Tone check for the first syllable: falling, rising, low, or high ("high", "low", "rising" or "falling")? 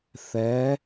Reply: rising